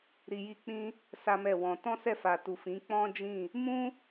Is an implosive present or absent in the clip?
absent